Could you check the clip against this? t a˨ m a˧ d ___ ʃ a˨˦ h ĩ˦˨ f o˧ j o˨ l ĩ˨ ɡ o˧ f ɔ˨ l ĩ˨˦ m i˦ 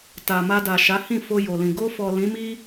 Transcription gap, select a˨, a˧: a˨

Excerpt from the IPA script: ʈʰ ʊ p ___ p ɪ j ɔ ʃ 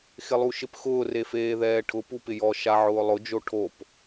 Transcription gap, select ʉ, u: u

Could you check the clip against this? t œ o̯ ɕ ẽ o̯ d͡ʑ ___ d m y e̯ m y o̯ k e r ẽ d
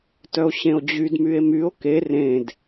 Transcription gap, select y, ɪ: y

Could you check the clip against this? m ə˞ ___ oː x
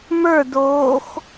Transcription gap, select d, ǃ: d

